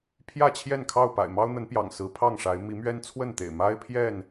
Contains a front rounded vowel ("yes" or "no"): no